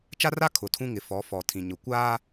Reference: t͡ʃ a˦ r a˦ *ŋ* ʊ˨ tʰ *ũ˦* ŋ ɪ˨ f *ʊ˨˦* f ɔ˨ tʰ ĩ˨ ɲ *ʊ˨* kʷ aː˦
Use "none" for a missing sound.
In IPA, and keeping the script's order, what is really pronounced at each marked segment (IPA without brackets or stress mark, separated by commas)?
kʰ, ũ˦, ɔ˨˦, ʊ˨